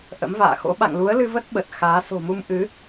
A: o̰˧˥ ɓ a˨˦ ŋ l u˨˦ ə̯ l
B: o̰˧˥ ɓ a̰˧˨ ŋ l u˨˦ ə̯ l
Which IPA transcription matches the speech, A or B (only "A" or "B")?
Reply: B